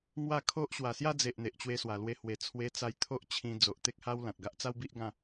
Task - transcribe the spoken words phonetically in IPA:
ŋ w a˥˧ kʰ o˦ ʔ ɕ w a˨˩ s j a˥˧ d͡z e˨ ʔ n̪ e˨ ʔ t͡ɕ w e˧ s w a˨˩ l w e˧ h w e˨˩ t͡sʰ w e˧ t͡s a˧ j t̪ʰ o˦ ʔ t͡ɕʰ ĩ˧ d͡z o˨ ʔ t̪ e˦ k̚ h a˦ w l ã˨ t̚ ɡ a˦ ʔ t͡s a˦ w b i˦ ʔ ɡ ã˥˧

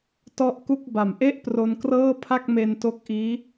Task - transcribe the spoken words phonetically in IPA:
t ɔ˥˩ ʔ k u˥˩ k̚ b a˨˩ m ʔ e˥˩ ʔ p r o˧ n k r ɤː˥˩ pʰ a˥˩ k̚ m e˧ n t o˦˥ k̚ ʔ iː˦˥

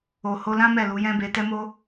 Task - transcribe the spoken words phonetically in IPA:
o˨ h o˧ l ã˦ m ɛ˦˨ l u˨˦ j ɛ̃˦ b e˧ t ɛ˦ m o˦

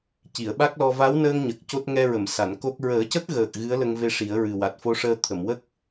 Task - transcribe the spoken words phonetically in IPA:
c i˨˩˨ ə̯ ɓ a˦˥ k̚ l ɔ˧ v a˧˥ w n əː˧ ŋ ɲ ə˨˩ k̚ c o˦˥ t̚ ŋ ɛ˧ ɹ ə˨˩˨ m s a˨˩˨ n k o˦˥ k̚ ɹ əː˨˩˦ c ə˦˥ k̚ ɣ əː˨˩ k̚ ɣ ɨ˧˥ ə̯ l ə˧ ŋ v e˧ ʂ i˨˩˦ ə̯ ɹ ɨ˨˩ w a˨˩ t̚ f o˧˥ ʂ əː˧ t̪ʰ ə˨˩˨ m w ə˦˥ k̚

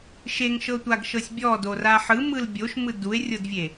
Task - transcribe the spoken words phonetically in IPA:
ʃ e ŋ ʃ ɤ tʷ a ɡ ʃ ɤ sʲ bʲ ɔ d o r a ħ ɯ m ɯ l bʲ o ʃ m ɯ d u e̯ rʲ ɤ d vʲ e

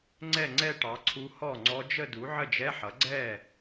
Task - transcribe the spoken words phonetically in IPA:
ŋ͡ǀ ɛ˥˩ ŋ͡ǀ ɛ˥˧ ʈ ɑ˩˥ ǀʰ u˧˥ h ɔ˥˩ ŋ͡ǀ ɔ˧˥ d͡ʒ ə˥˧ d u˩˥ ʕ ə˥˩ d͡ʒ ɛ˧˥˧ ħ ʌ˩˥ ɡ͡ǀ ɛ˥˩

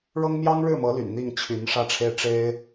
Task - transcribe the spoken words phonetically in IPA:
ɻ ɤ˥ ŋ m j ɑ˥ ŋ ɻ ɻ̩˥˩ m ɤ˧˥ l y̰˨˩ n n̪ i˥˩ ŋ t͡ɕʰ y˧˥ n ʂ ä˥˧ ʈ͡ʂʰ e˥˩ ɪ̯ ʈ͡ʂ e˥ ɪ̯

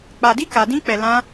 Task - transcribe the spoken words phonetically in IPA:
k͡p a˧ d i˦ k a˧ d ĩ˦ k͡p ɛ˧ l ã˦

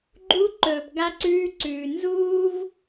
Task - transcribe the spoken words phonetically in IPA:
ɡ͡ǃ u˧ ǃ ɵː˨ p ɡ a˧ ǀ ʉː˧ ǀ ʉː˨ n z uː˦ v

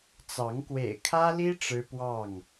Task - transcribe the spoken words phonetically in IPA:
t͡s ɑ˨˦ ŋ k w ḛ˨˩ ɪ̯ kʰ ä˦ l i˦ ʈ͡ʂ ɻ̩˦ p w ɑ˥˨ ŋ

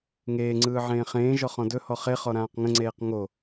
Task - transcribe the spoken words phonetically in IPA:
ŋ eː ŋ͡ǀ ɯː ʕ ẽː χ ẽː ʒ ɔ χ ɔ̃ d ɵ h ɔ χ e χ ɔ ɾ ãː q ŋ ə̃ ŋ͡ǀ eː q ŋ o

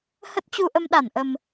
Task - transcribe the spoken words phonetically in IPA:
h ə˦˥ t̚ t͡ɕ u˧ ʔ ə˧ m ɗ a˧˩ n ʔ ə˨˩ m

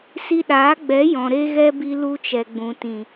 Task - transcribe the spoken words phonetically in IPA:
s i˧ ɗ aː˨˦ ɡ͡b ɛ˨˦ j ɔ̃˨ ɾ e˧ ɣ ɛ˧ b i˧ l u˧ t͡ʃ ɛ˨ ɡ͡b ũ˨ t ĩ˨

